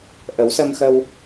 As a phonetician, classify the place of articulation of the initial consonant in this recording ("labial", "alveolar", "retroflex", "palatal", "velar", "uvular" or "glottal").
glottal